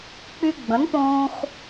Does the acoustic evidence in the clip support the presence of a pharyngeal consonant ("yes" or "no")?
no